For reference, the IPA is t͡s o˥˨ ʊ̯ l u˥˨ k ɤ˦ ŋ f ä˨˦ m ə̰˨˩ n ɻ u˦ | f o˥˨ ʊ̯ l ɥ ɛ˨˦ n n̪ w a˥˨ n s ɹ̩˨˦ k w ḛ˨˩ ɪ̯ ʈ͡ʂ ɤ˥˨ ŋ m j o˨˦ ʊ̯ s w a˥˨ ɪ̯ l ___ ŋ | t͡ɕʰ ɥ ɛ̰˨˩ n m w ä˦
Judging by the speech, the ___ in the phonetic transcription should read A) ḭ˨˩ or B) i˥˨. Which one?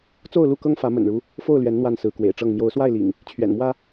A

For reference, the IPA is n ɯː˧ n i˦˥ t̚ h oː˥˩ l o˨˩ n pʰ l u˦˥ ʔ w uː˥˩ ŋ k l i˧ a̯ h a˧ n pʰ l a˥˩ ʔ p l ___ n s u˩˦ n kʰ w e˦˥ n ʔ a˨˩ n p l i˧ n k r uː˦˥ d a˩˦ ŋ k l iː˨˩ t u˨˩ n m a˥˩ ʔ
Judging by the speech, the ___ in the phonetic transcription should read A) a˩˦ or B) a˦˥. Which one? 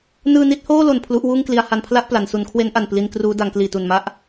A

